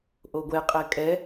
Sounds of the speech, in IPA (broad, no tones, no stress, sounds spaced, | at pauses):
ʔ o ɡʷ ɛ qʼ ɛ kʼ ɛ